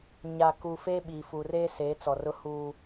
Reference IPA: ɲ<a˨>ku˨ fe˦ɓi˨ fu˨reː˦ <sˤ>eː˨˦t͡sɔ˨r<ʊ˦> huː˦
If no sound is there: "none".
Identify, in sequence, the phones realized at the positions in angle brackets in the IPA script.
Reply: a˨, s, ʊ˦

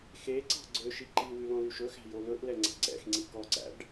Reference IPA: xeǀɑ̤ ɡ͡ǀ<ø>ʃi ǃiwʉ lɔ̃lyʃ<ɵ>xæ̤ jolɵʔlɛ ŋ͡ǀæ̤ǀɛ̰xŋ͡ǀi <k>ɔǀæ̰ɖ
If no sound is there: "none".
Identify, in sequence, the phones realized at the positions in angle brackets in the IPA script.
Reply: ø, ɵ, k

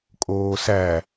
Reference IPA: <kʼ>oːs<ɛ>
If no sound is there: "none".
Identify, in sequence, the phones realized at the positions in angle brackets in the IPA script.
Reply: kʼ, æ

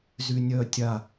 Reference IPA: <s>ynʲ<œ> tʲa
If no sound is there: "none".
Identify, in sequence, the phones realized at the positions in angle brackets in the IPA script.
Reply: z, œ

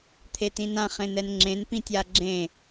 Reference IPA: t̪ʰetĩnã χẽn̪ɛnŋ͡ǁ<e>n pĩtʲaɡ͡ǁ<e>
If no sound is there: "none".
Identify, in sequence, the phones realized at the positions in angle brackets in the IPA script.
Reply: ẽ, ẽ

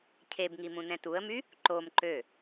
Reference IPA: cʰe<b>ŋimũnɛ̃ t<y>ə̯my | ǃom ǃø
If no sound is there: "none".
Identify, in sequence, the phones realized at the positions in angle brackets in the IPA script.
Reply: b, u

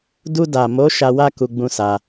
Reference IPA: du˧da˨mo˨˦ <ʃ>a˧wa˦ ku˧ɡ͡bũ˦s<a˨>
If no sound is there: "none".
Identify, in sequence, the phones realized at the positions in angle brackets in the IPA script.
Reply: ʃ, a˧

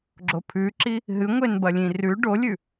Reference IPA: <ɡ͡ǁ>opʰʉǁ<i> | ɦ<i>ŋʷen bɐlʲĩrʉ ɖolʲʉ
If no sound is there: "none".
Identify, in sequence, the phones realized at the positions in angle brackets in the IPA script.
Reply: ɡ͡ǁ, i, ɨ

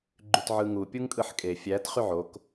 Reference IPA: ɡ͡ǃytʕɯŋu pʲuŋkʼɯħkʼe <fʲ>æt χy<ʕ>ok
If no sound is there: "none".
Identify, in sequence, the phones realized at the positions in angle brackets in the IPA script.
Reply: fʲ, ʕ

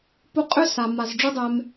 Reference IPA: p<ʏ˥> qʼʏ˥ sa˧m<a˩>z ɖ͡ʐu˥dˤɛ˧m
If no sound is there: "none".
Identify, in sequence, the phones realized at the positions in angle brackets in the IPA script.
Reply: u˥, a˧

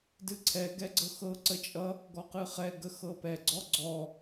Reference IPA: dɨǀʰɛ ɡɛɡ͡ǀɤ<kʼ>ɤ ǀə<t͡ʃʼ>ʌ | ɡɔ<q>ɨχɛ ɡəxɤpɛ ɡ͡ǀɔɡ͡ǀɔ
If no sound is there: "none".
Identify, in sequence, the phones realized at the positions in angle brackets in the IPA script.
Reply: x, t͡ʃʼ, q

